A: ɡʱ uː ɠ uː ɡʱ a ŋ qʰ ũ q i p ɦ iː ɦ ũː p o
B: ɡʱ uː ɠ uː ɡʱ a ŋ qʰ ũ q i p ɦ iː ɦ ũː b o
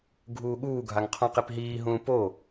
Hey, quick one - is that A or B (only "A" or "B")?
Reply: A